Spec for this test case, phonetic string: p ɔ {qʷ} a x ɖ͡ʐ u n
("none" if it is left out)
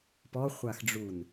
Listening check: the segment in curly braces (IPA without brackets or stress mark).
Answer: χʷ